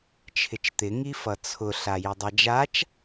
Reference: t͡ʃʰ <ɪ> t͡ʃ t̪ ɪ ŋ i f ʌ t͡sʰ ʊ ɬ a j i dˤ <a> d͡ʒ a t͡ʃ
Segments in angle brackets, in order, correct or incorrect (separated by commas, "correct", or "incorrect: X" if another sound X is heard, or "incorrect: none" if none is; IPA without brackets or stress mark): correct, correct